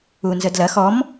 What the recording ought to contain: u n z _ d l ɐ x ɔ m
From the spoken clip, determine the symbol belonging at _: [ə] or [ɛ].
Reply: ə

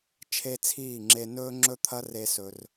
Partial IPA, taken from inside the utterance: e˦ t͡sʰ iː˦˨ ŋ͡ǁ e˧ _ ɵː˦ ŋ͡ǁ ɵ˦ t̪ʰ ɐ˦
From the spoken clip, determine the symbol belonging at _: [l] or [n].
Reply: n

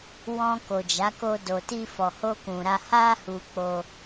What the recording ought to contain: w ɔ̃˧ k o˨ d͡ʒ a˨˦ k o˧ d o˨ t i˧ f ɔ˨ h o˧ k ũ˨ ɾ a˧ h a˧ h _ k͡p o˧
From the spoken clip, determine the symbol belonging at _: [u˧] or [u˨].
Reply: u˨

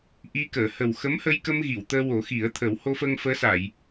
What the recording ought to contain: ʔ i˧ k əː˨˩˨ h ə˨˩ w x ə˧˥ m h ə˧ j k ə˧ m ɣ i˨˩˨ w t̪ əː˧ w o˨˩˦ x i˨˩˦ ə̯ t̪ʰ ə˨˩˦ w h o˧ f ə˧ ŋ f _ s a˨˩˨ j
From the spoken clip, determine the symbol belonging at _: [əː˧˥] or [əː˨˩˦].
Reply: əː˧˥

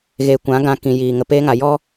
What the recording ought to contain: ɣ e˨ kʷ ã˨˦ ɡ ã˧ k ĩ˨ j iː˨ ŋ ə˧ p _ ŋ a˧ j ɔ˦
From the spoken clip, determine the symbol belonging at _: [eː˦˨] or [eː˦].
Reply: eː˦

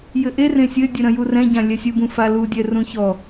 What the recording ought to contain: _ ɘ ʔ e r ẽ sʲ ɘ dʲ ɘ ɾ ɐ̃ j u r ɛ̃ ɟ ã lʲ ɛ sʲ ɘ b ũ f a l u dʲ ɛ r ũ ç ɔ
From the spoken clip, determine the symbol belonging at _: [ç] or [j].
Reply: j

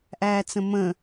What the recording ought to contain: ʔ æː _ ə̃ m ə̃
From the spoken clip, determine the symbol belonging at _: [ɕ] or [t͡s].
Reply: t͡s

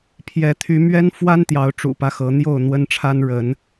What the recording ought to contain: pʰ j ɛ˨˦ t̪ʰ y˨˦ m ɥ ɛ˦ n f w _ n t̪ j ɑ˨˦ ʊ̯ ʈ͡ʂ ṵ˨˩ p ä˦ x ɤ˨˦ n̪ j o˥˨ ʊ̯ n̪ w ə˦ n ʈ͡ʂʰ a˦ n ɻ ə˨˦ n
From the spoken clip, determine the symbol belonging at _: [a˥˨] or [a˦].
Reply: a˦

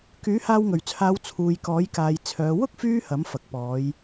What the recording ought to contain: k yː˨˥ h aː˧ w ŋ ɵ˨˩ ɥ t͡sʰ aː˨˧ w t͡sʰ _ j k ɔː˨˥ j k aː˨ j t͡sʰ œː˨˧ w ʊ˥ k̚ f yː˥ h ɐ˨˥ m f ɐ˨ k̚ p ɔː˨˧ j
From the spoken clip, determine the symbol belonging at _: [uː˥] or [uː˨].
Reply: uː˨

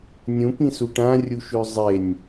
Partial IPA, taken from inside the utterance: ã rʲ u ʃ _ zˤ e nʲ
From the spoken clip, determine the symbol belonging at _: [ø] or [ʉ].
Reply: ʉ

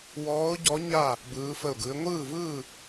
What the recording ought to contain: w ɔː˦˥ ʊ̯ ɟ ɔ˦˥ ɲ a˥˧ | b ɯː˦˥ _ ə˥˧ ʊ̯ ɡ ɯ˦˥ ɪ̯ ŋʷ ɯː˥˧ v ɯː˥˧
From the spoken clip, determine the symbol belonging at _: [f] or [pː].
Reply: f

